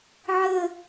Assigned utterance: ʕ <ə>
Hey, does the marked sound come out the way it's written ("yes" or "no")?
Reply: yes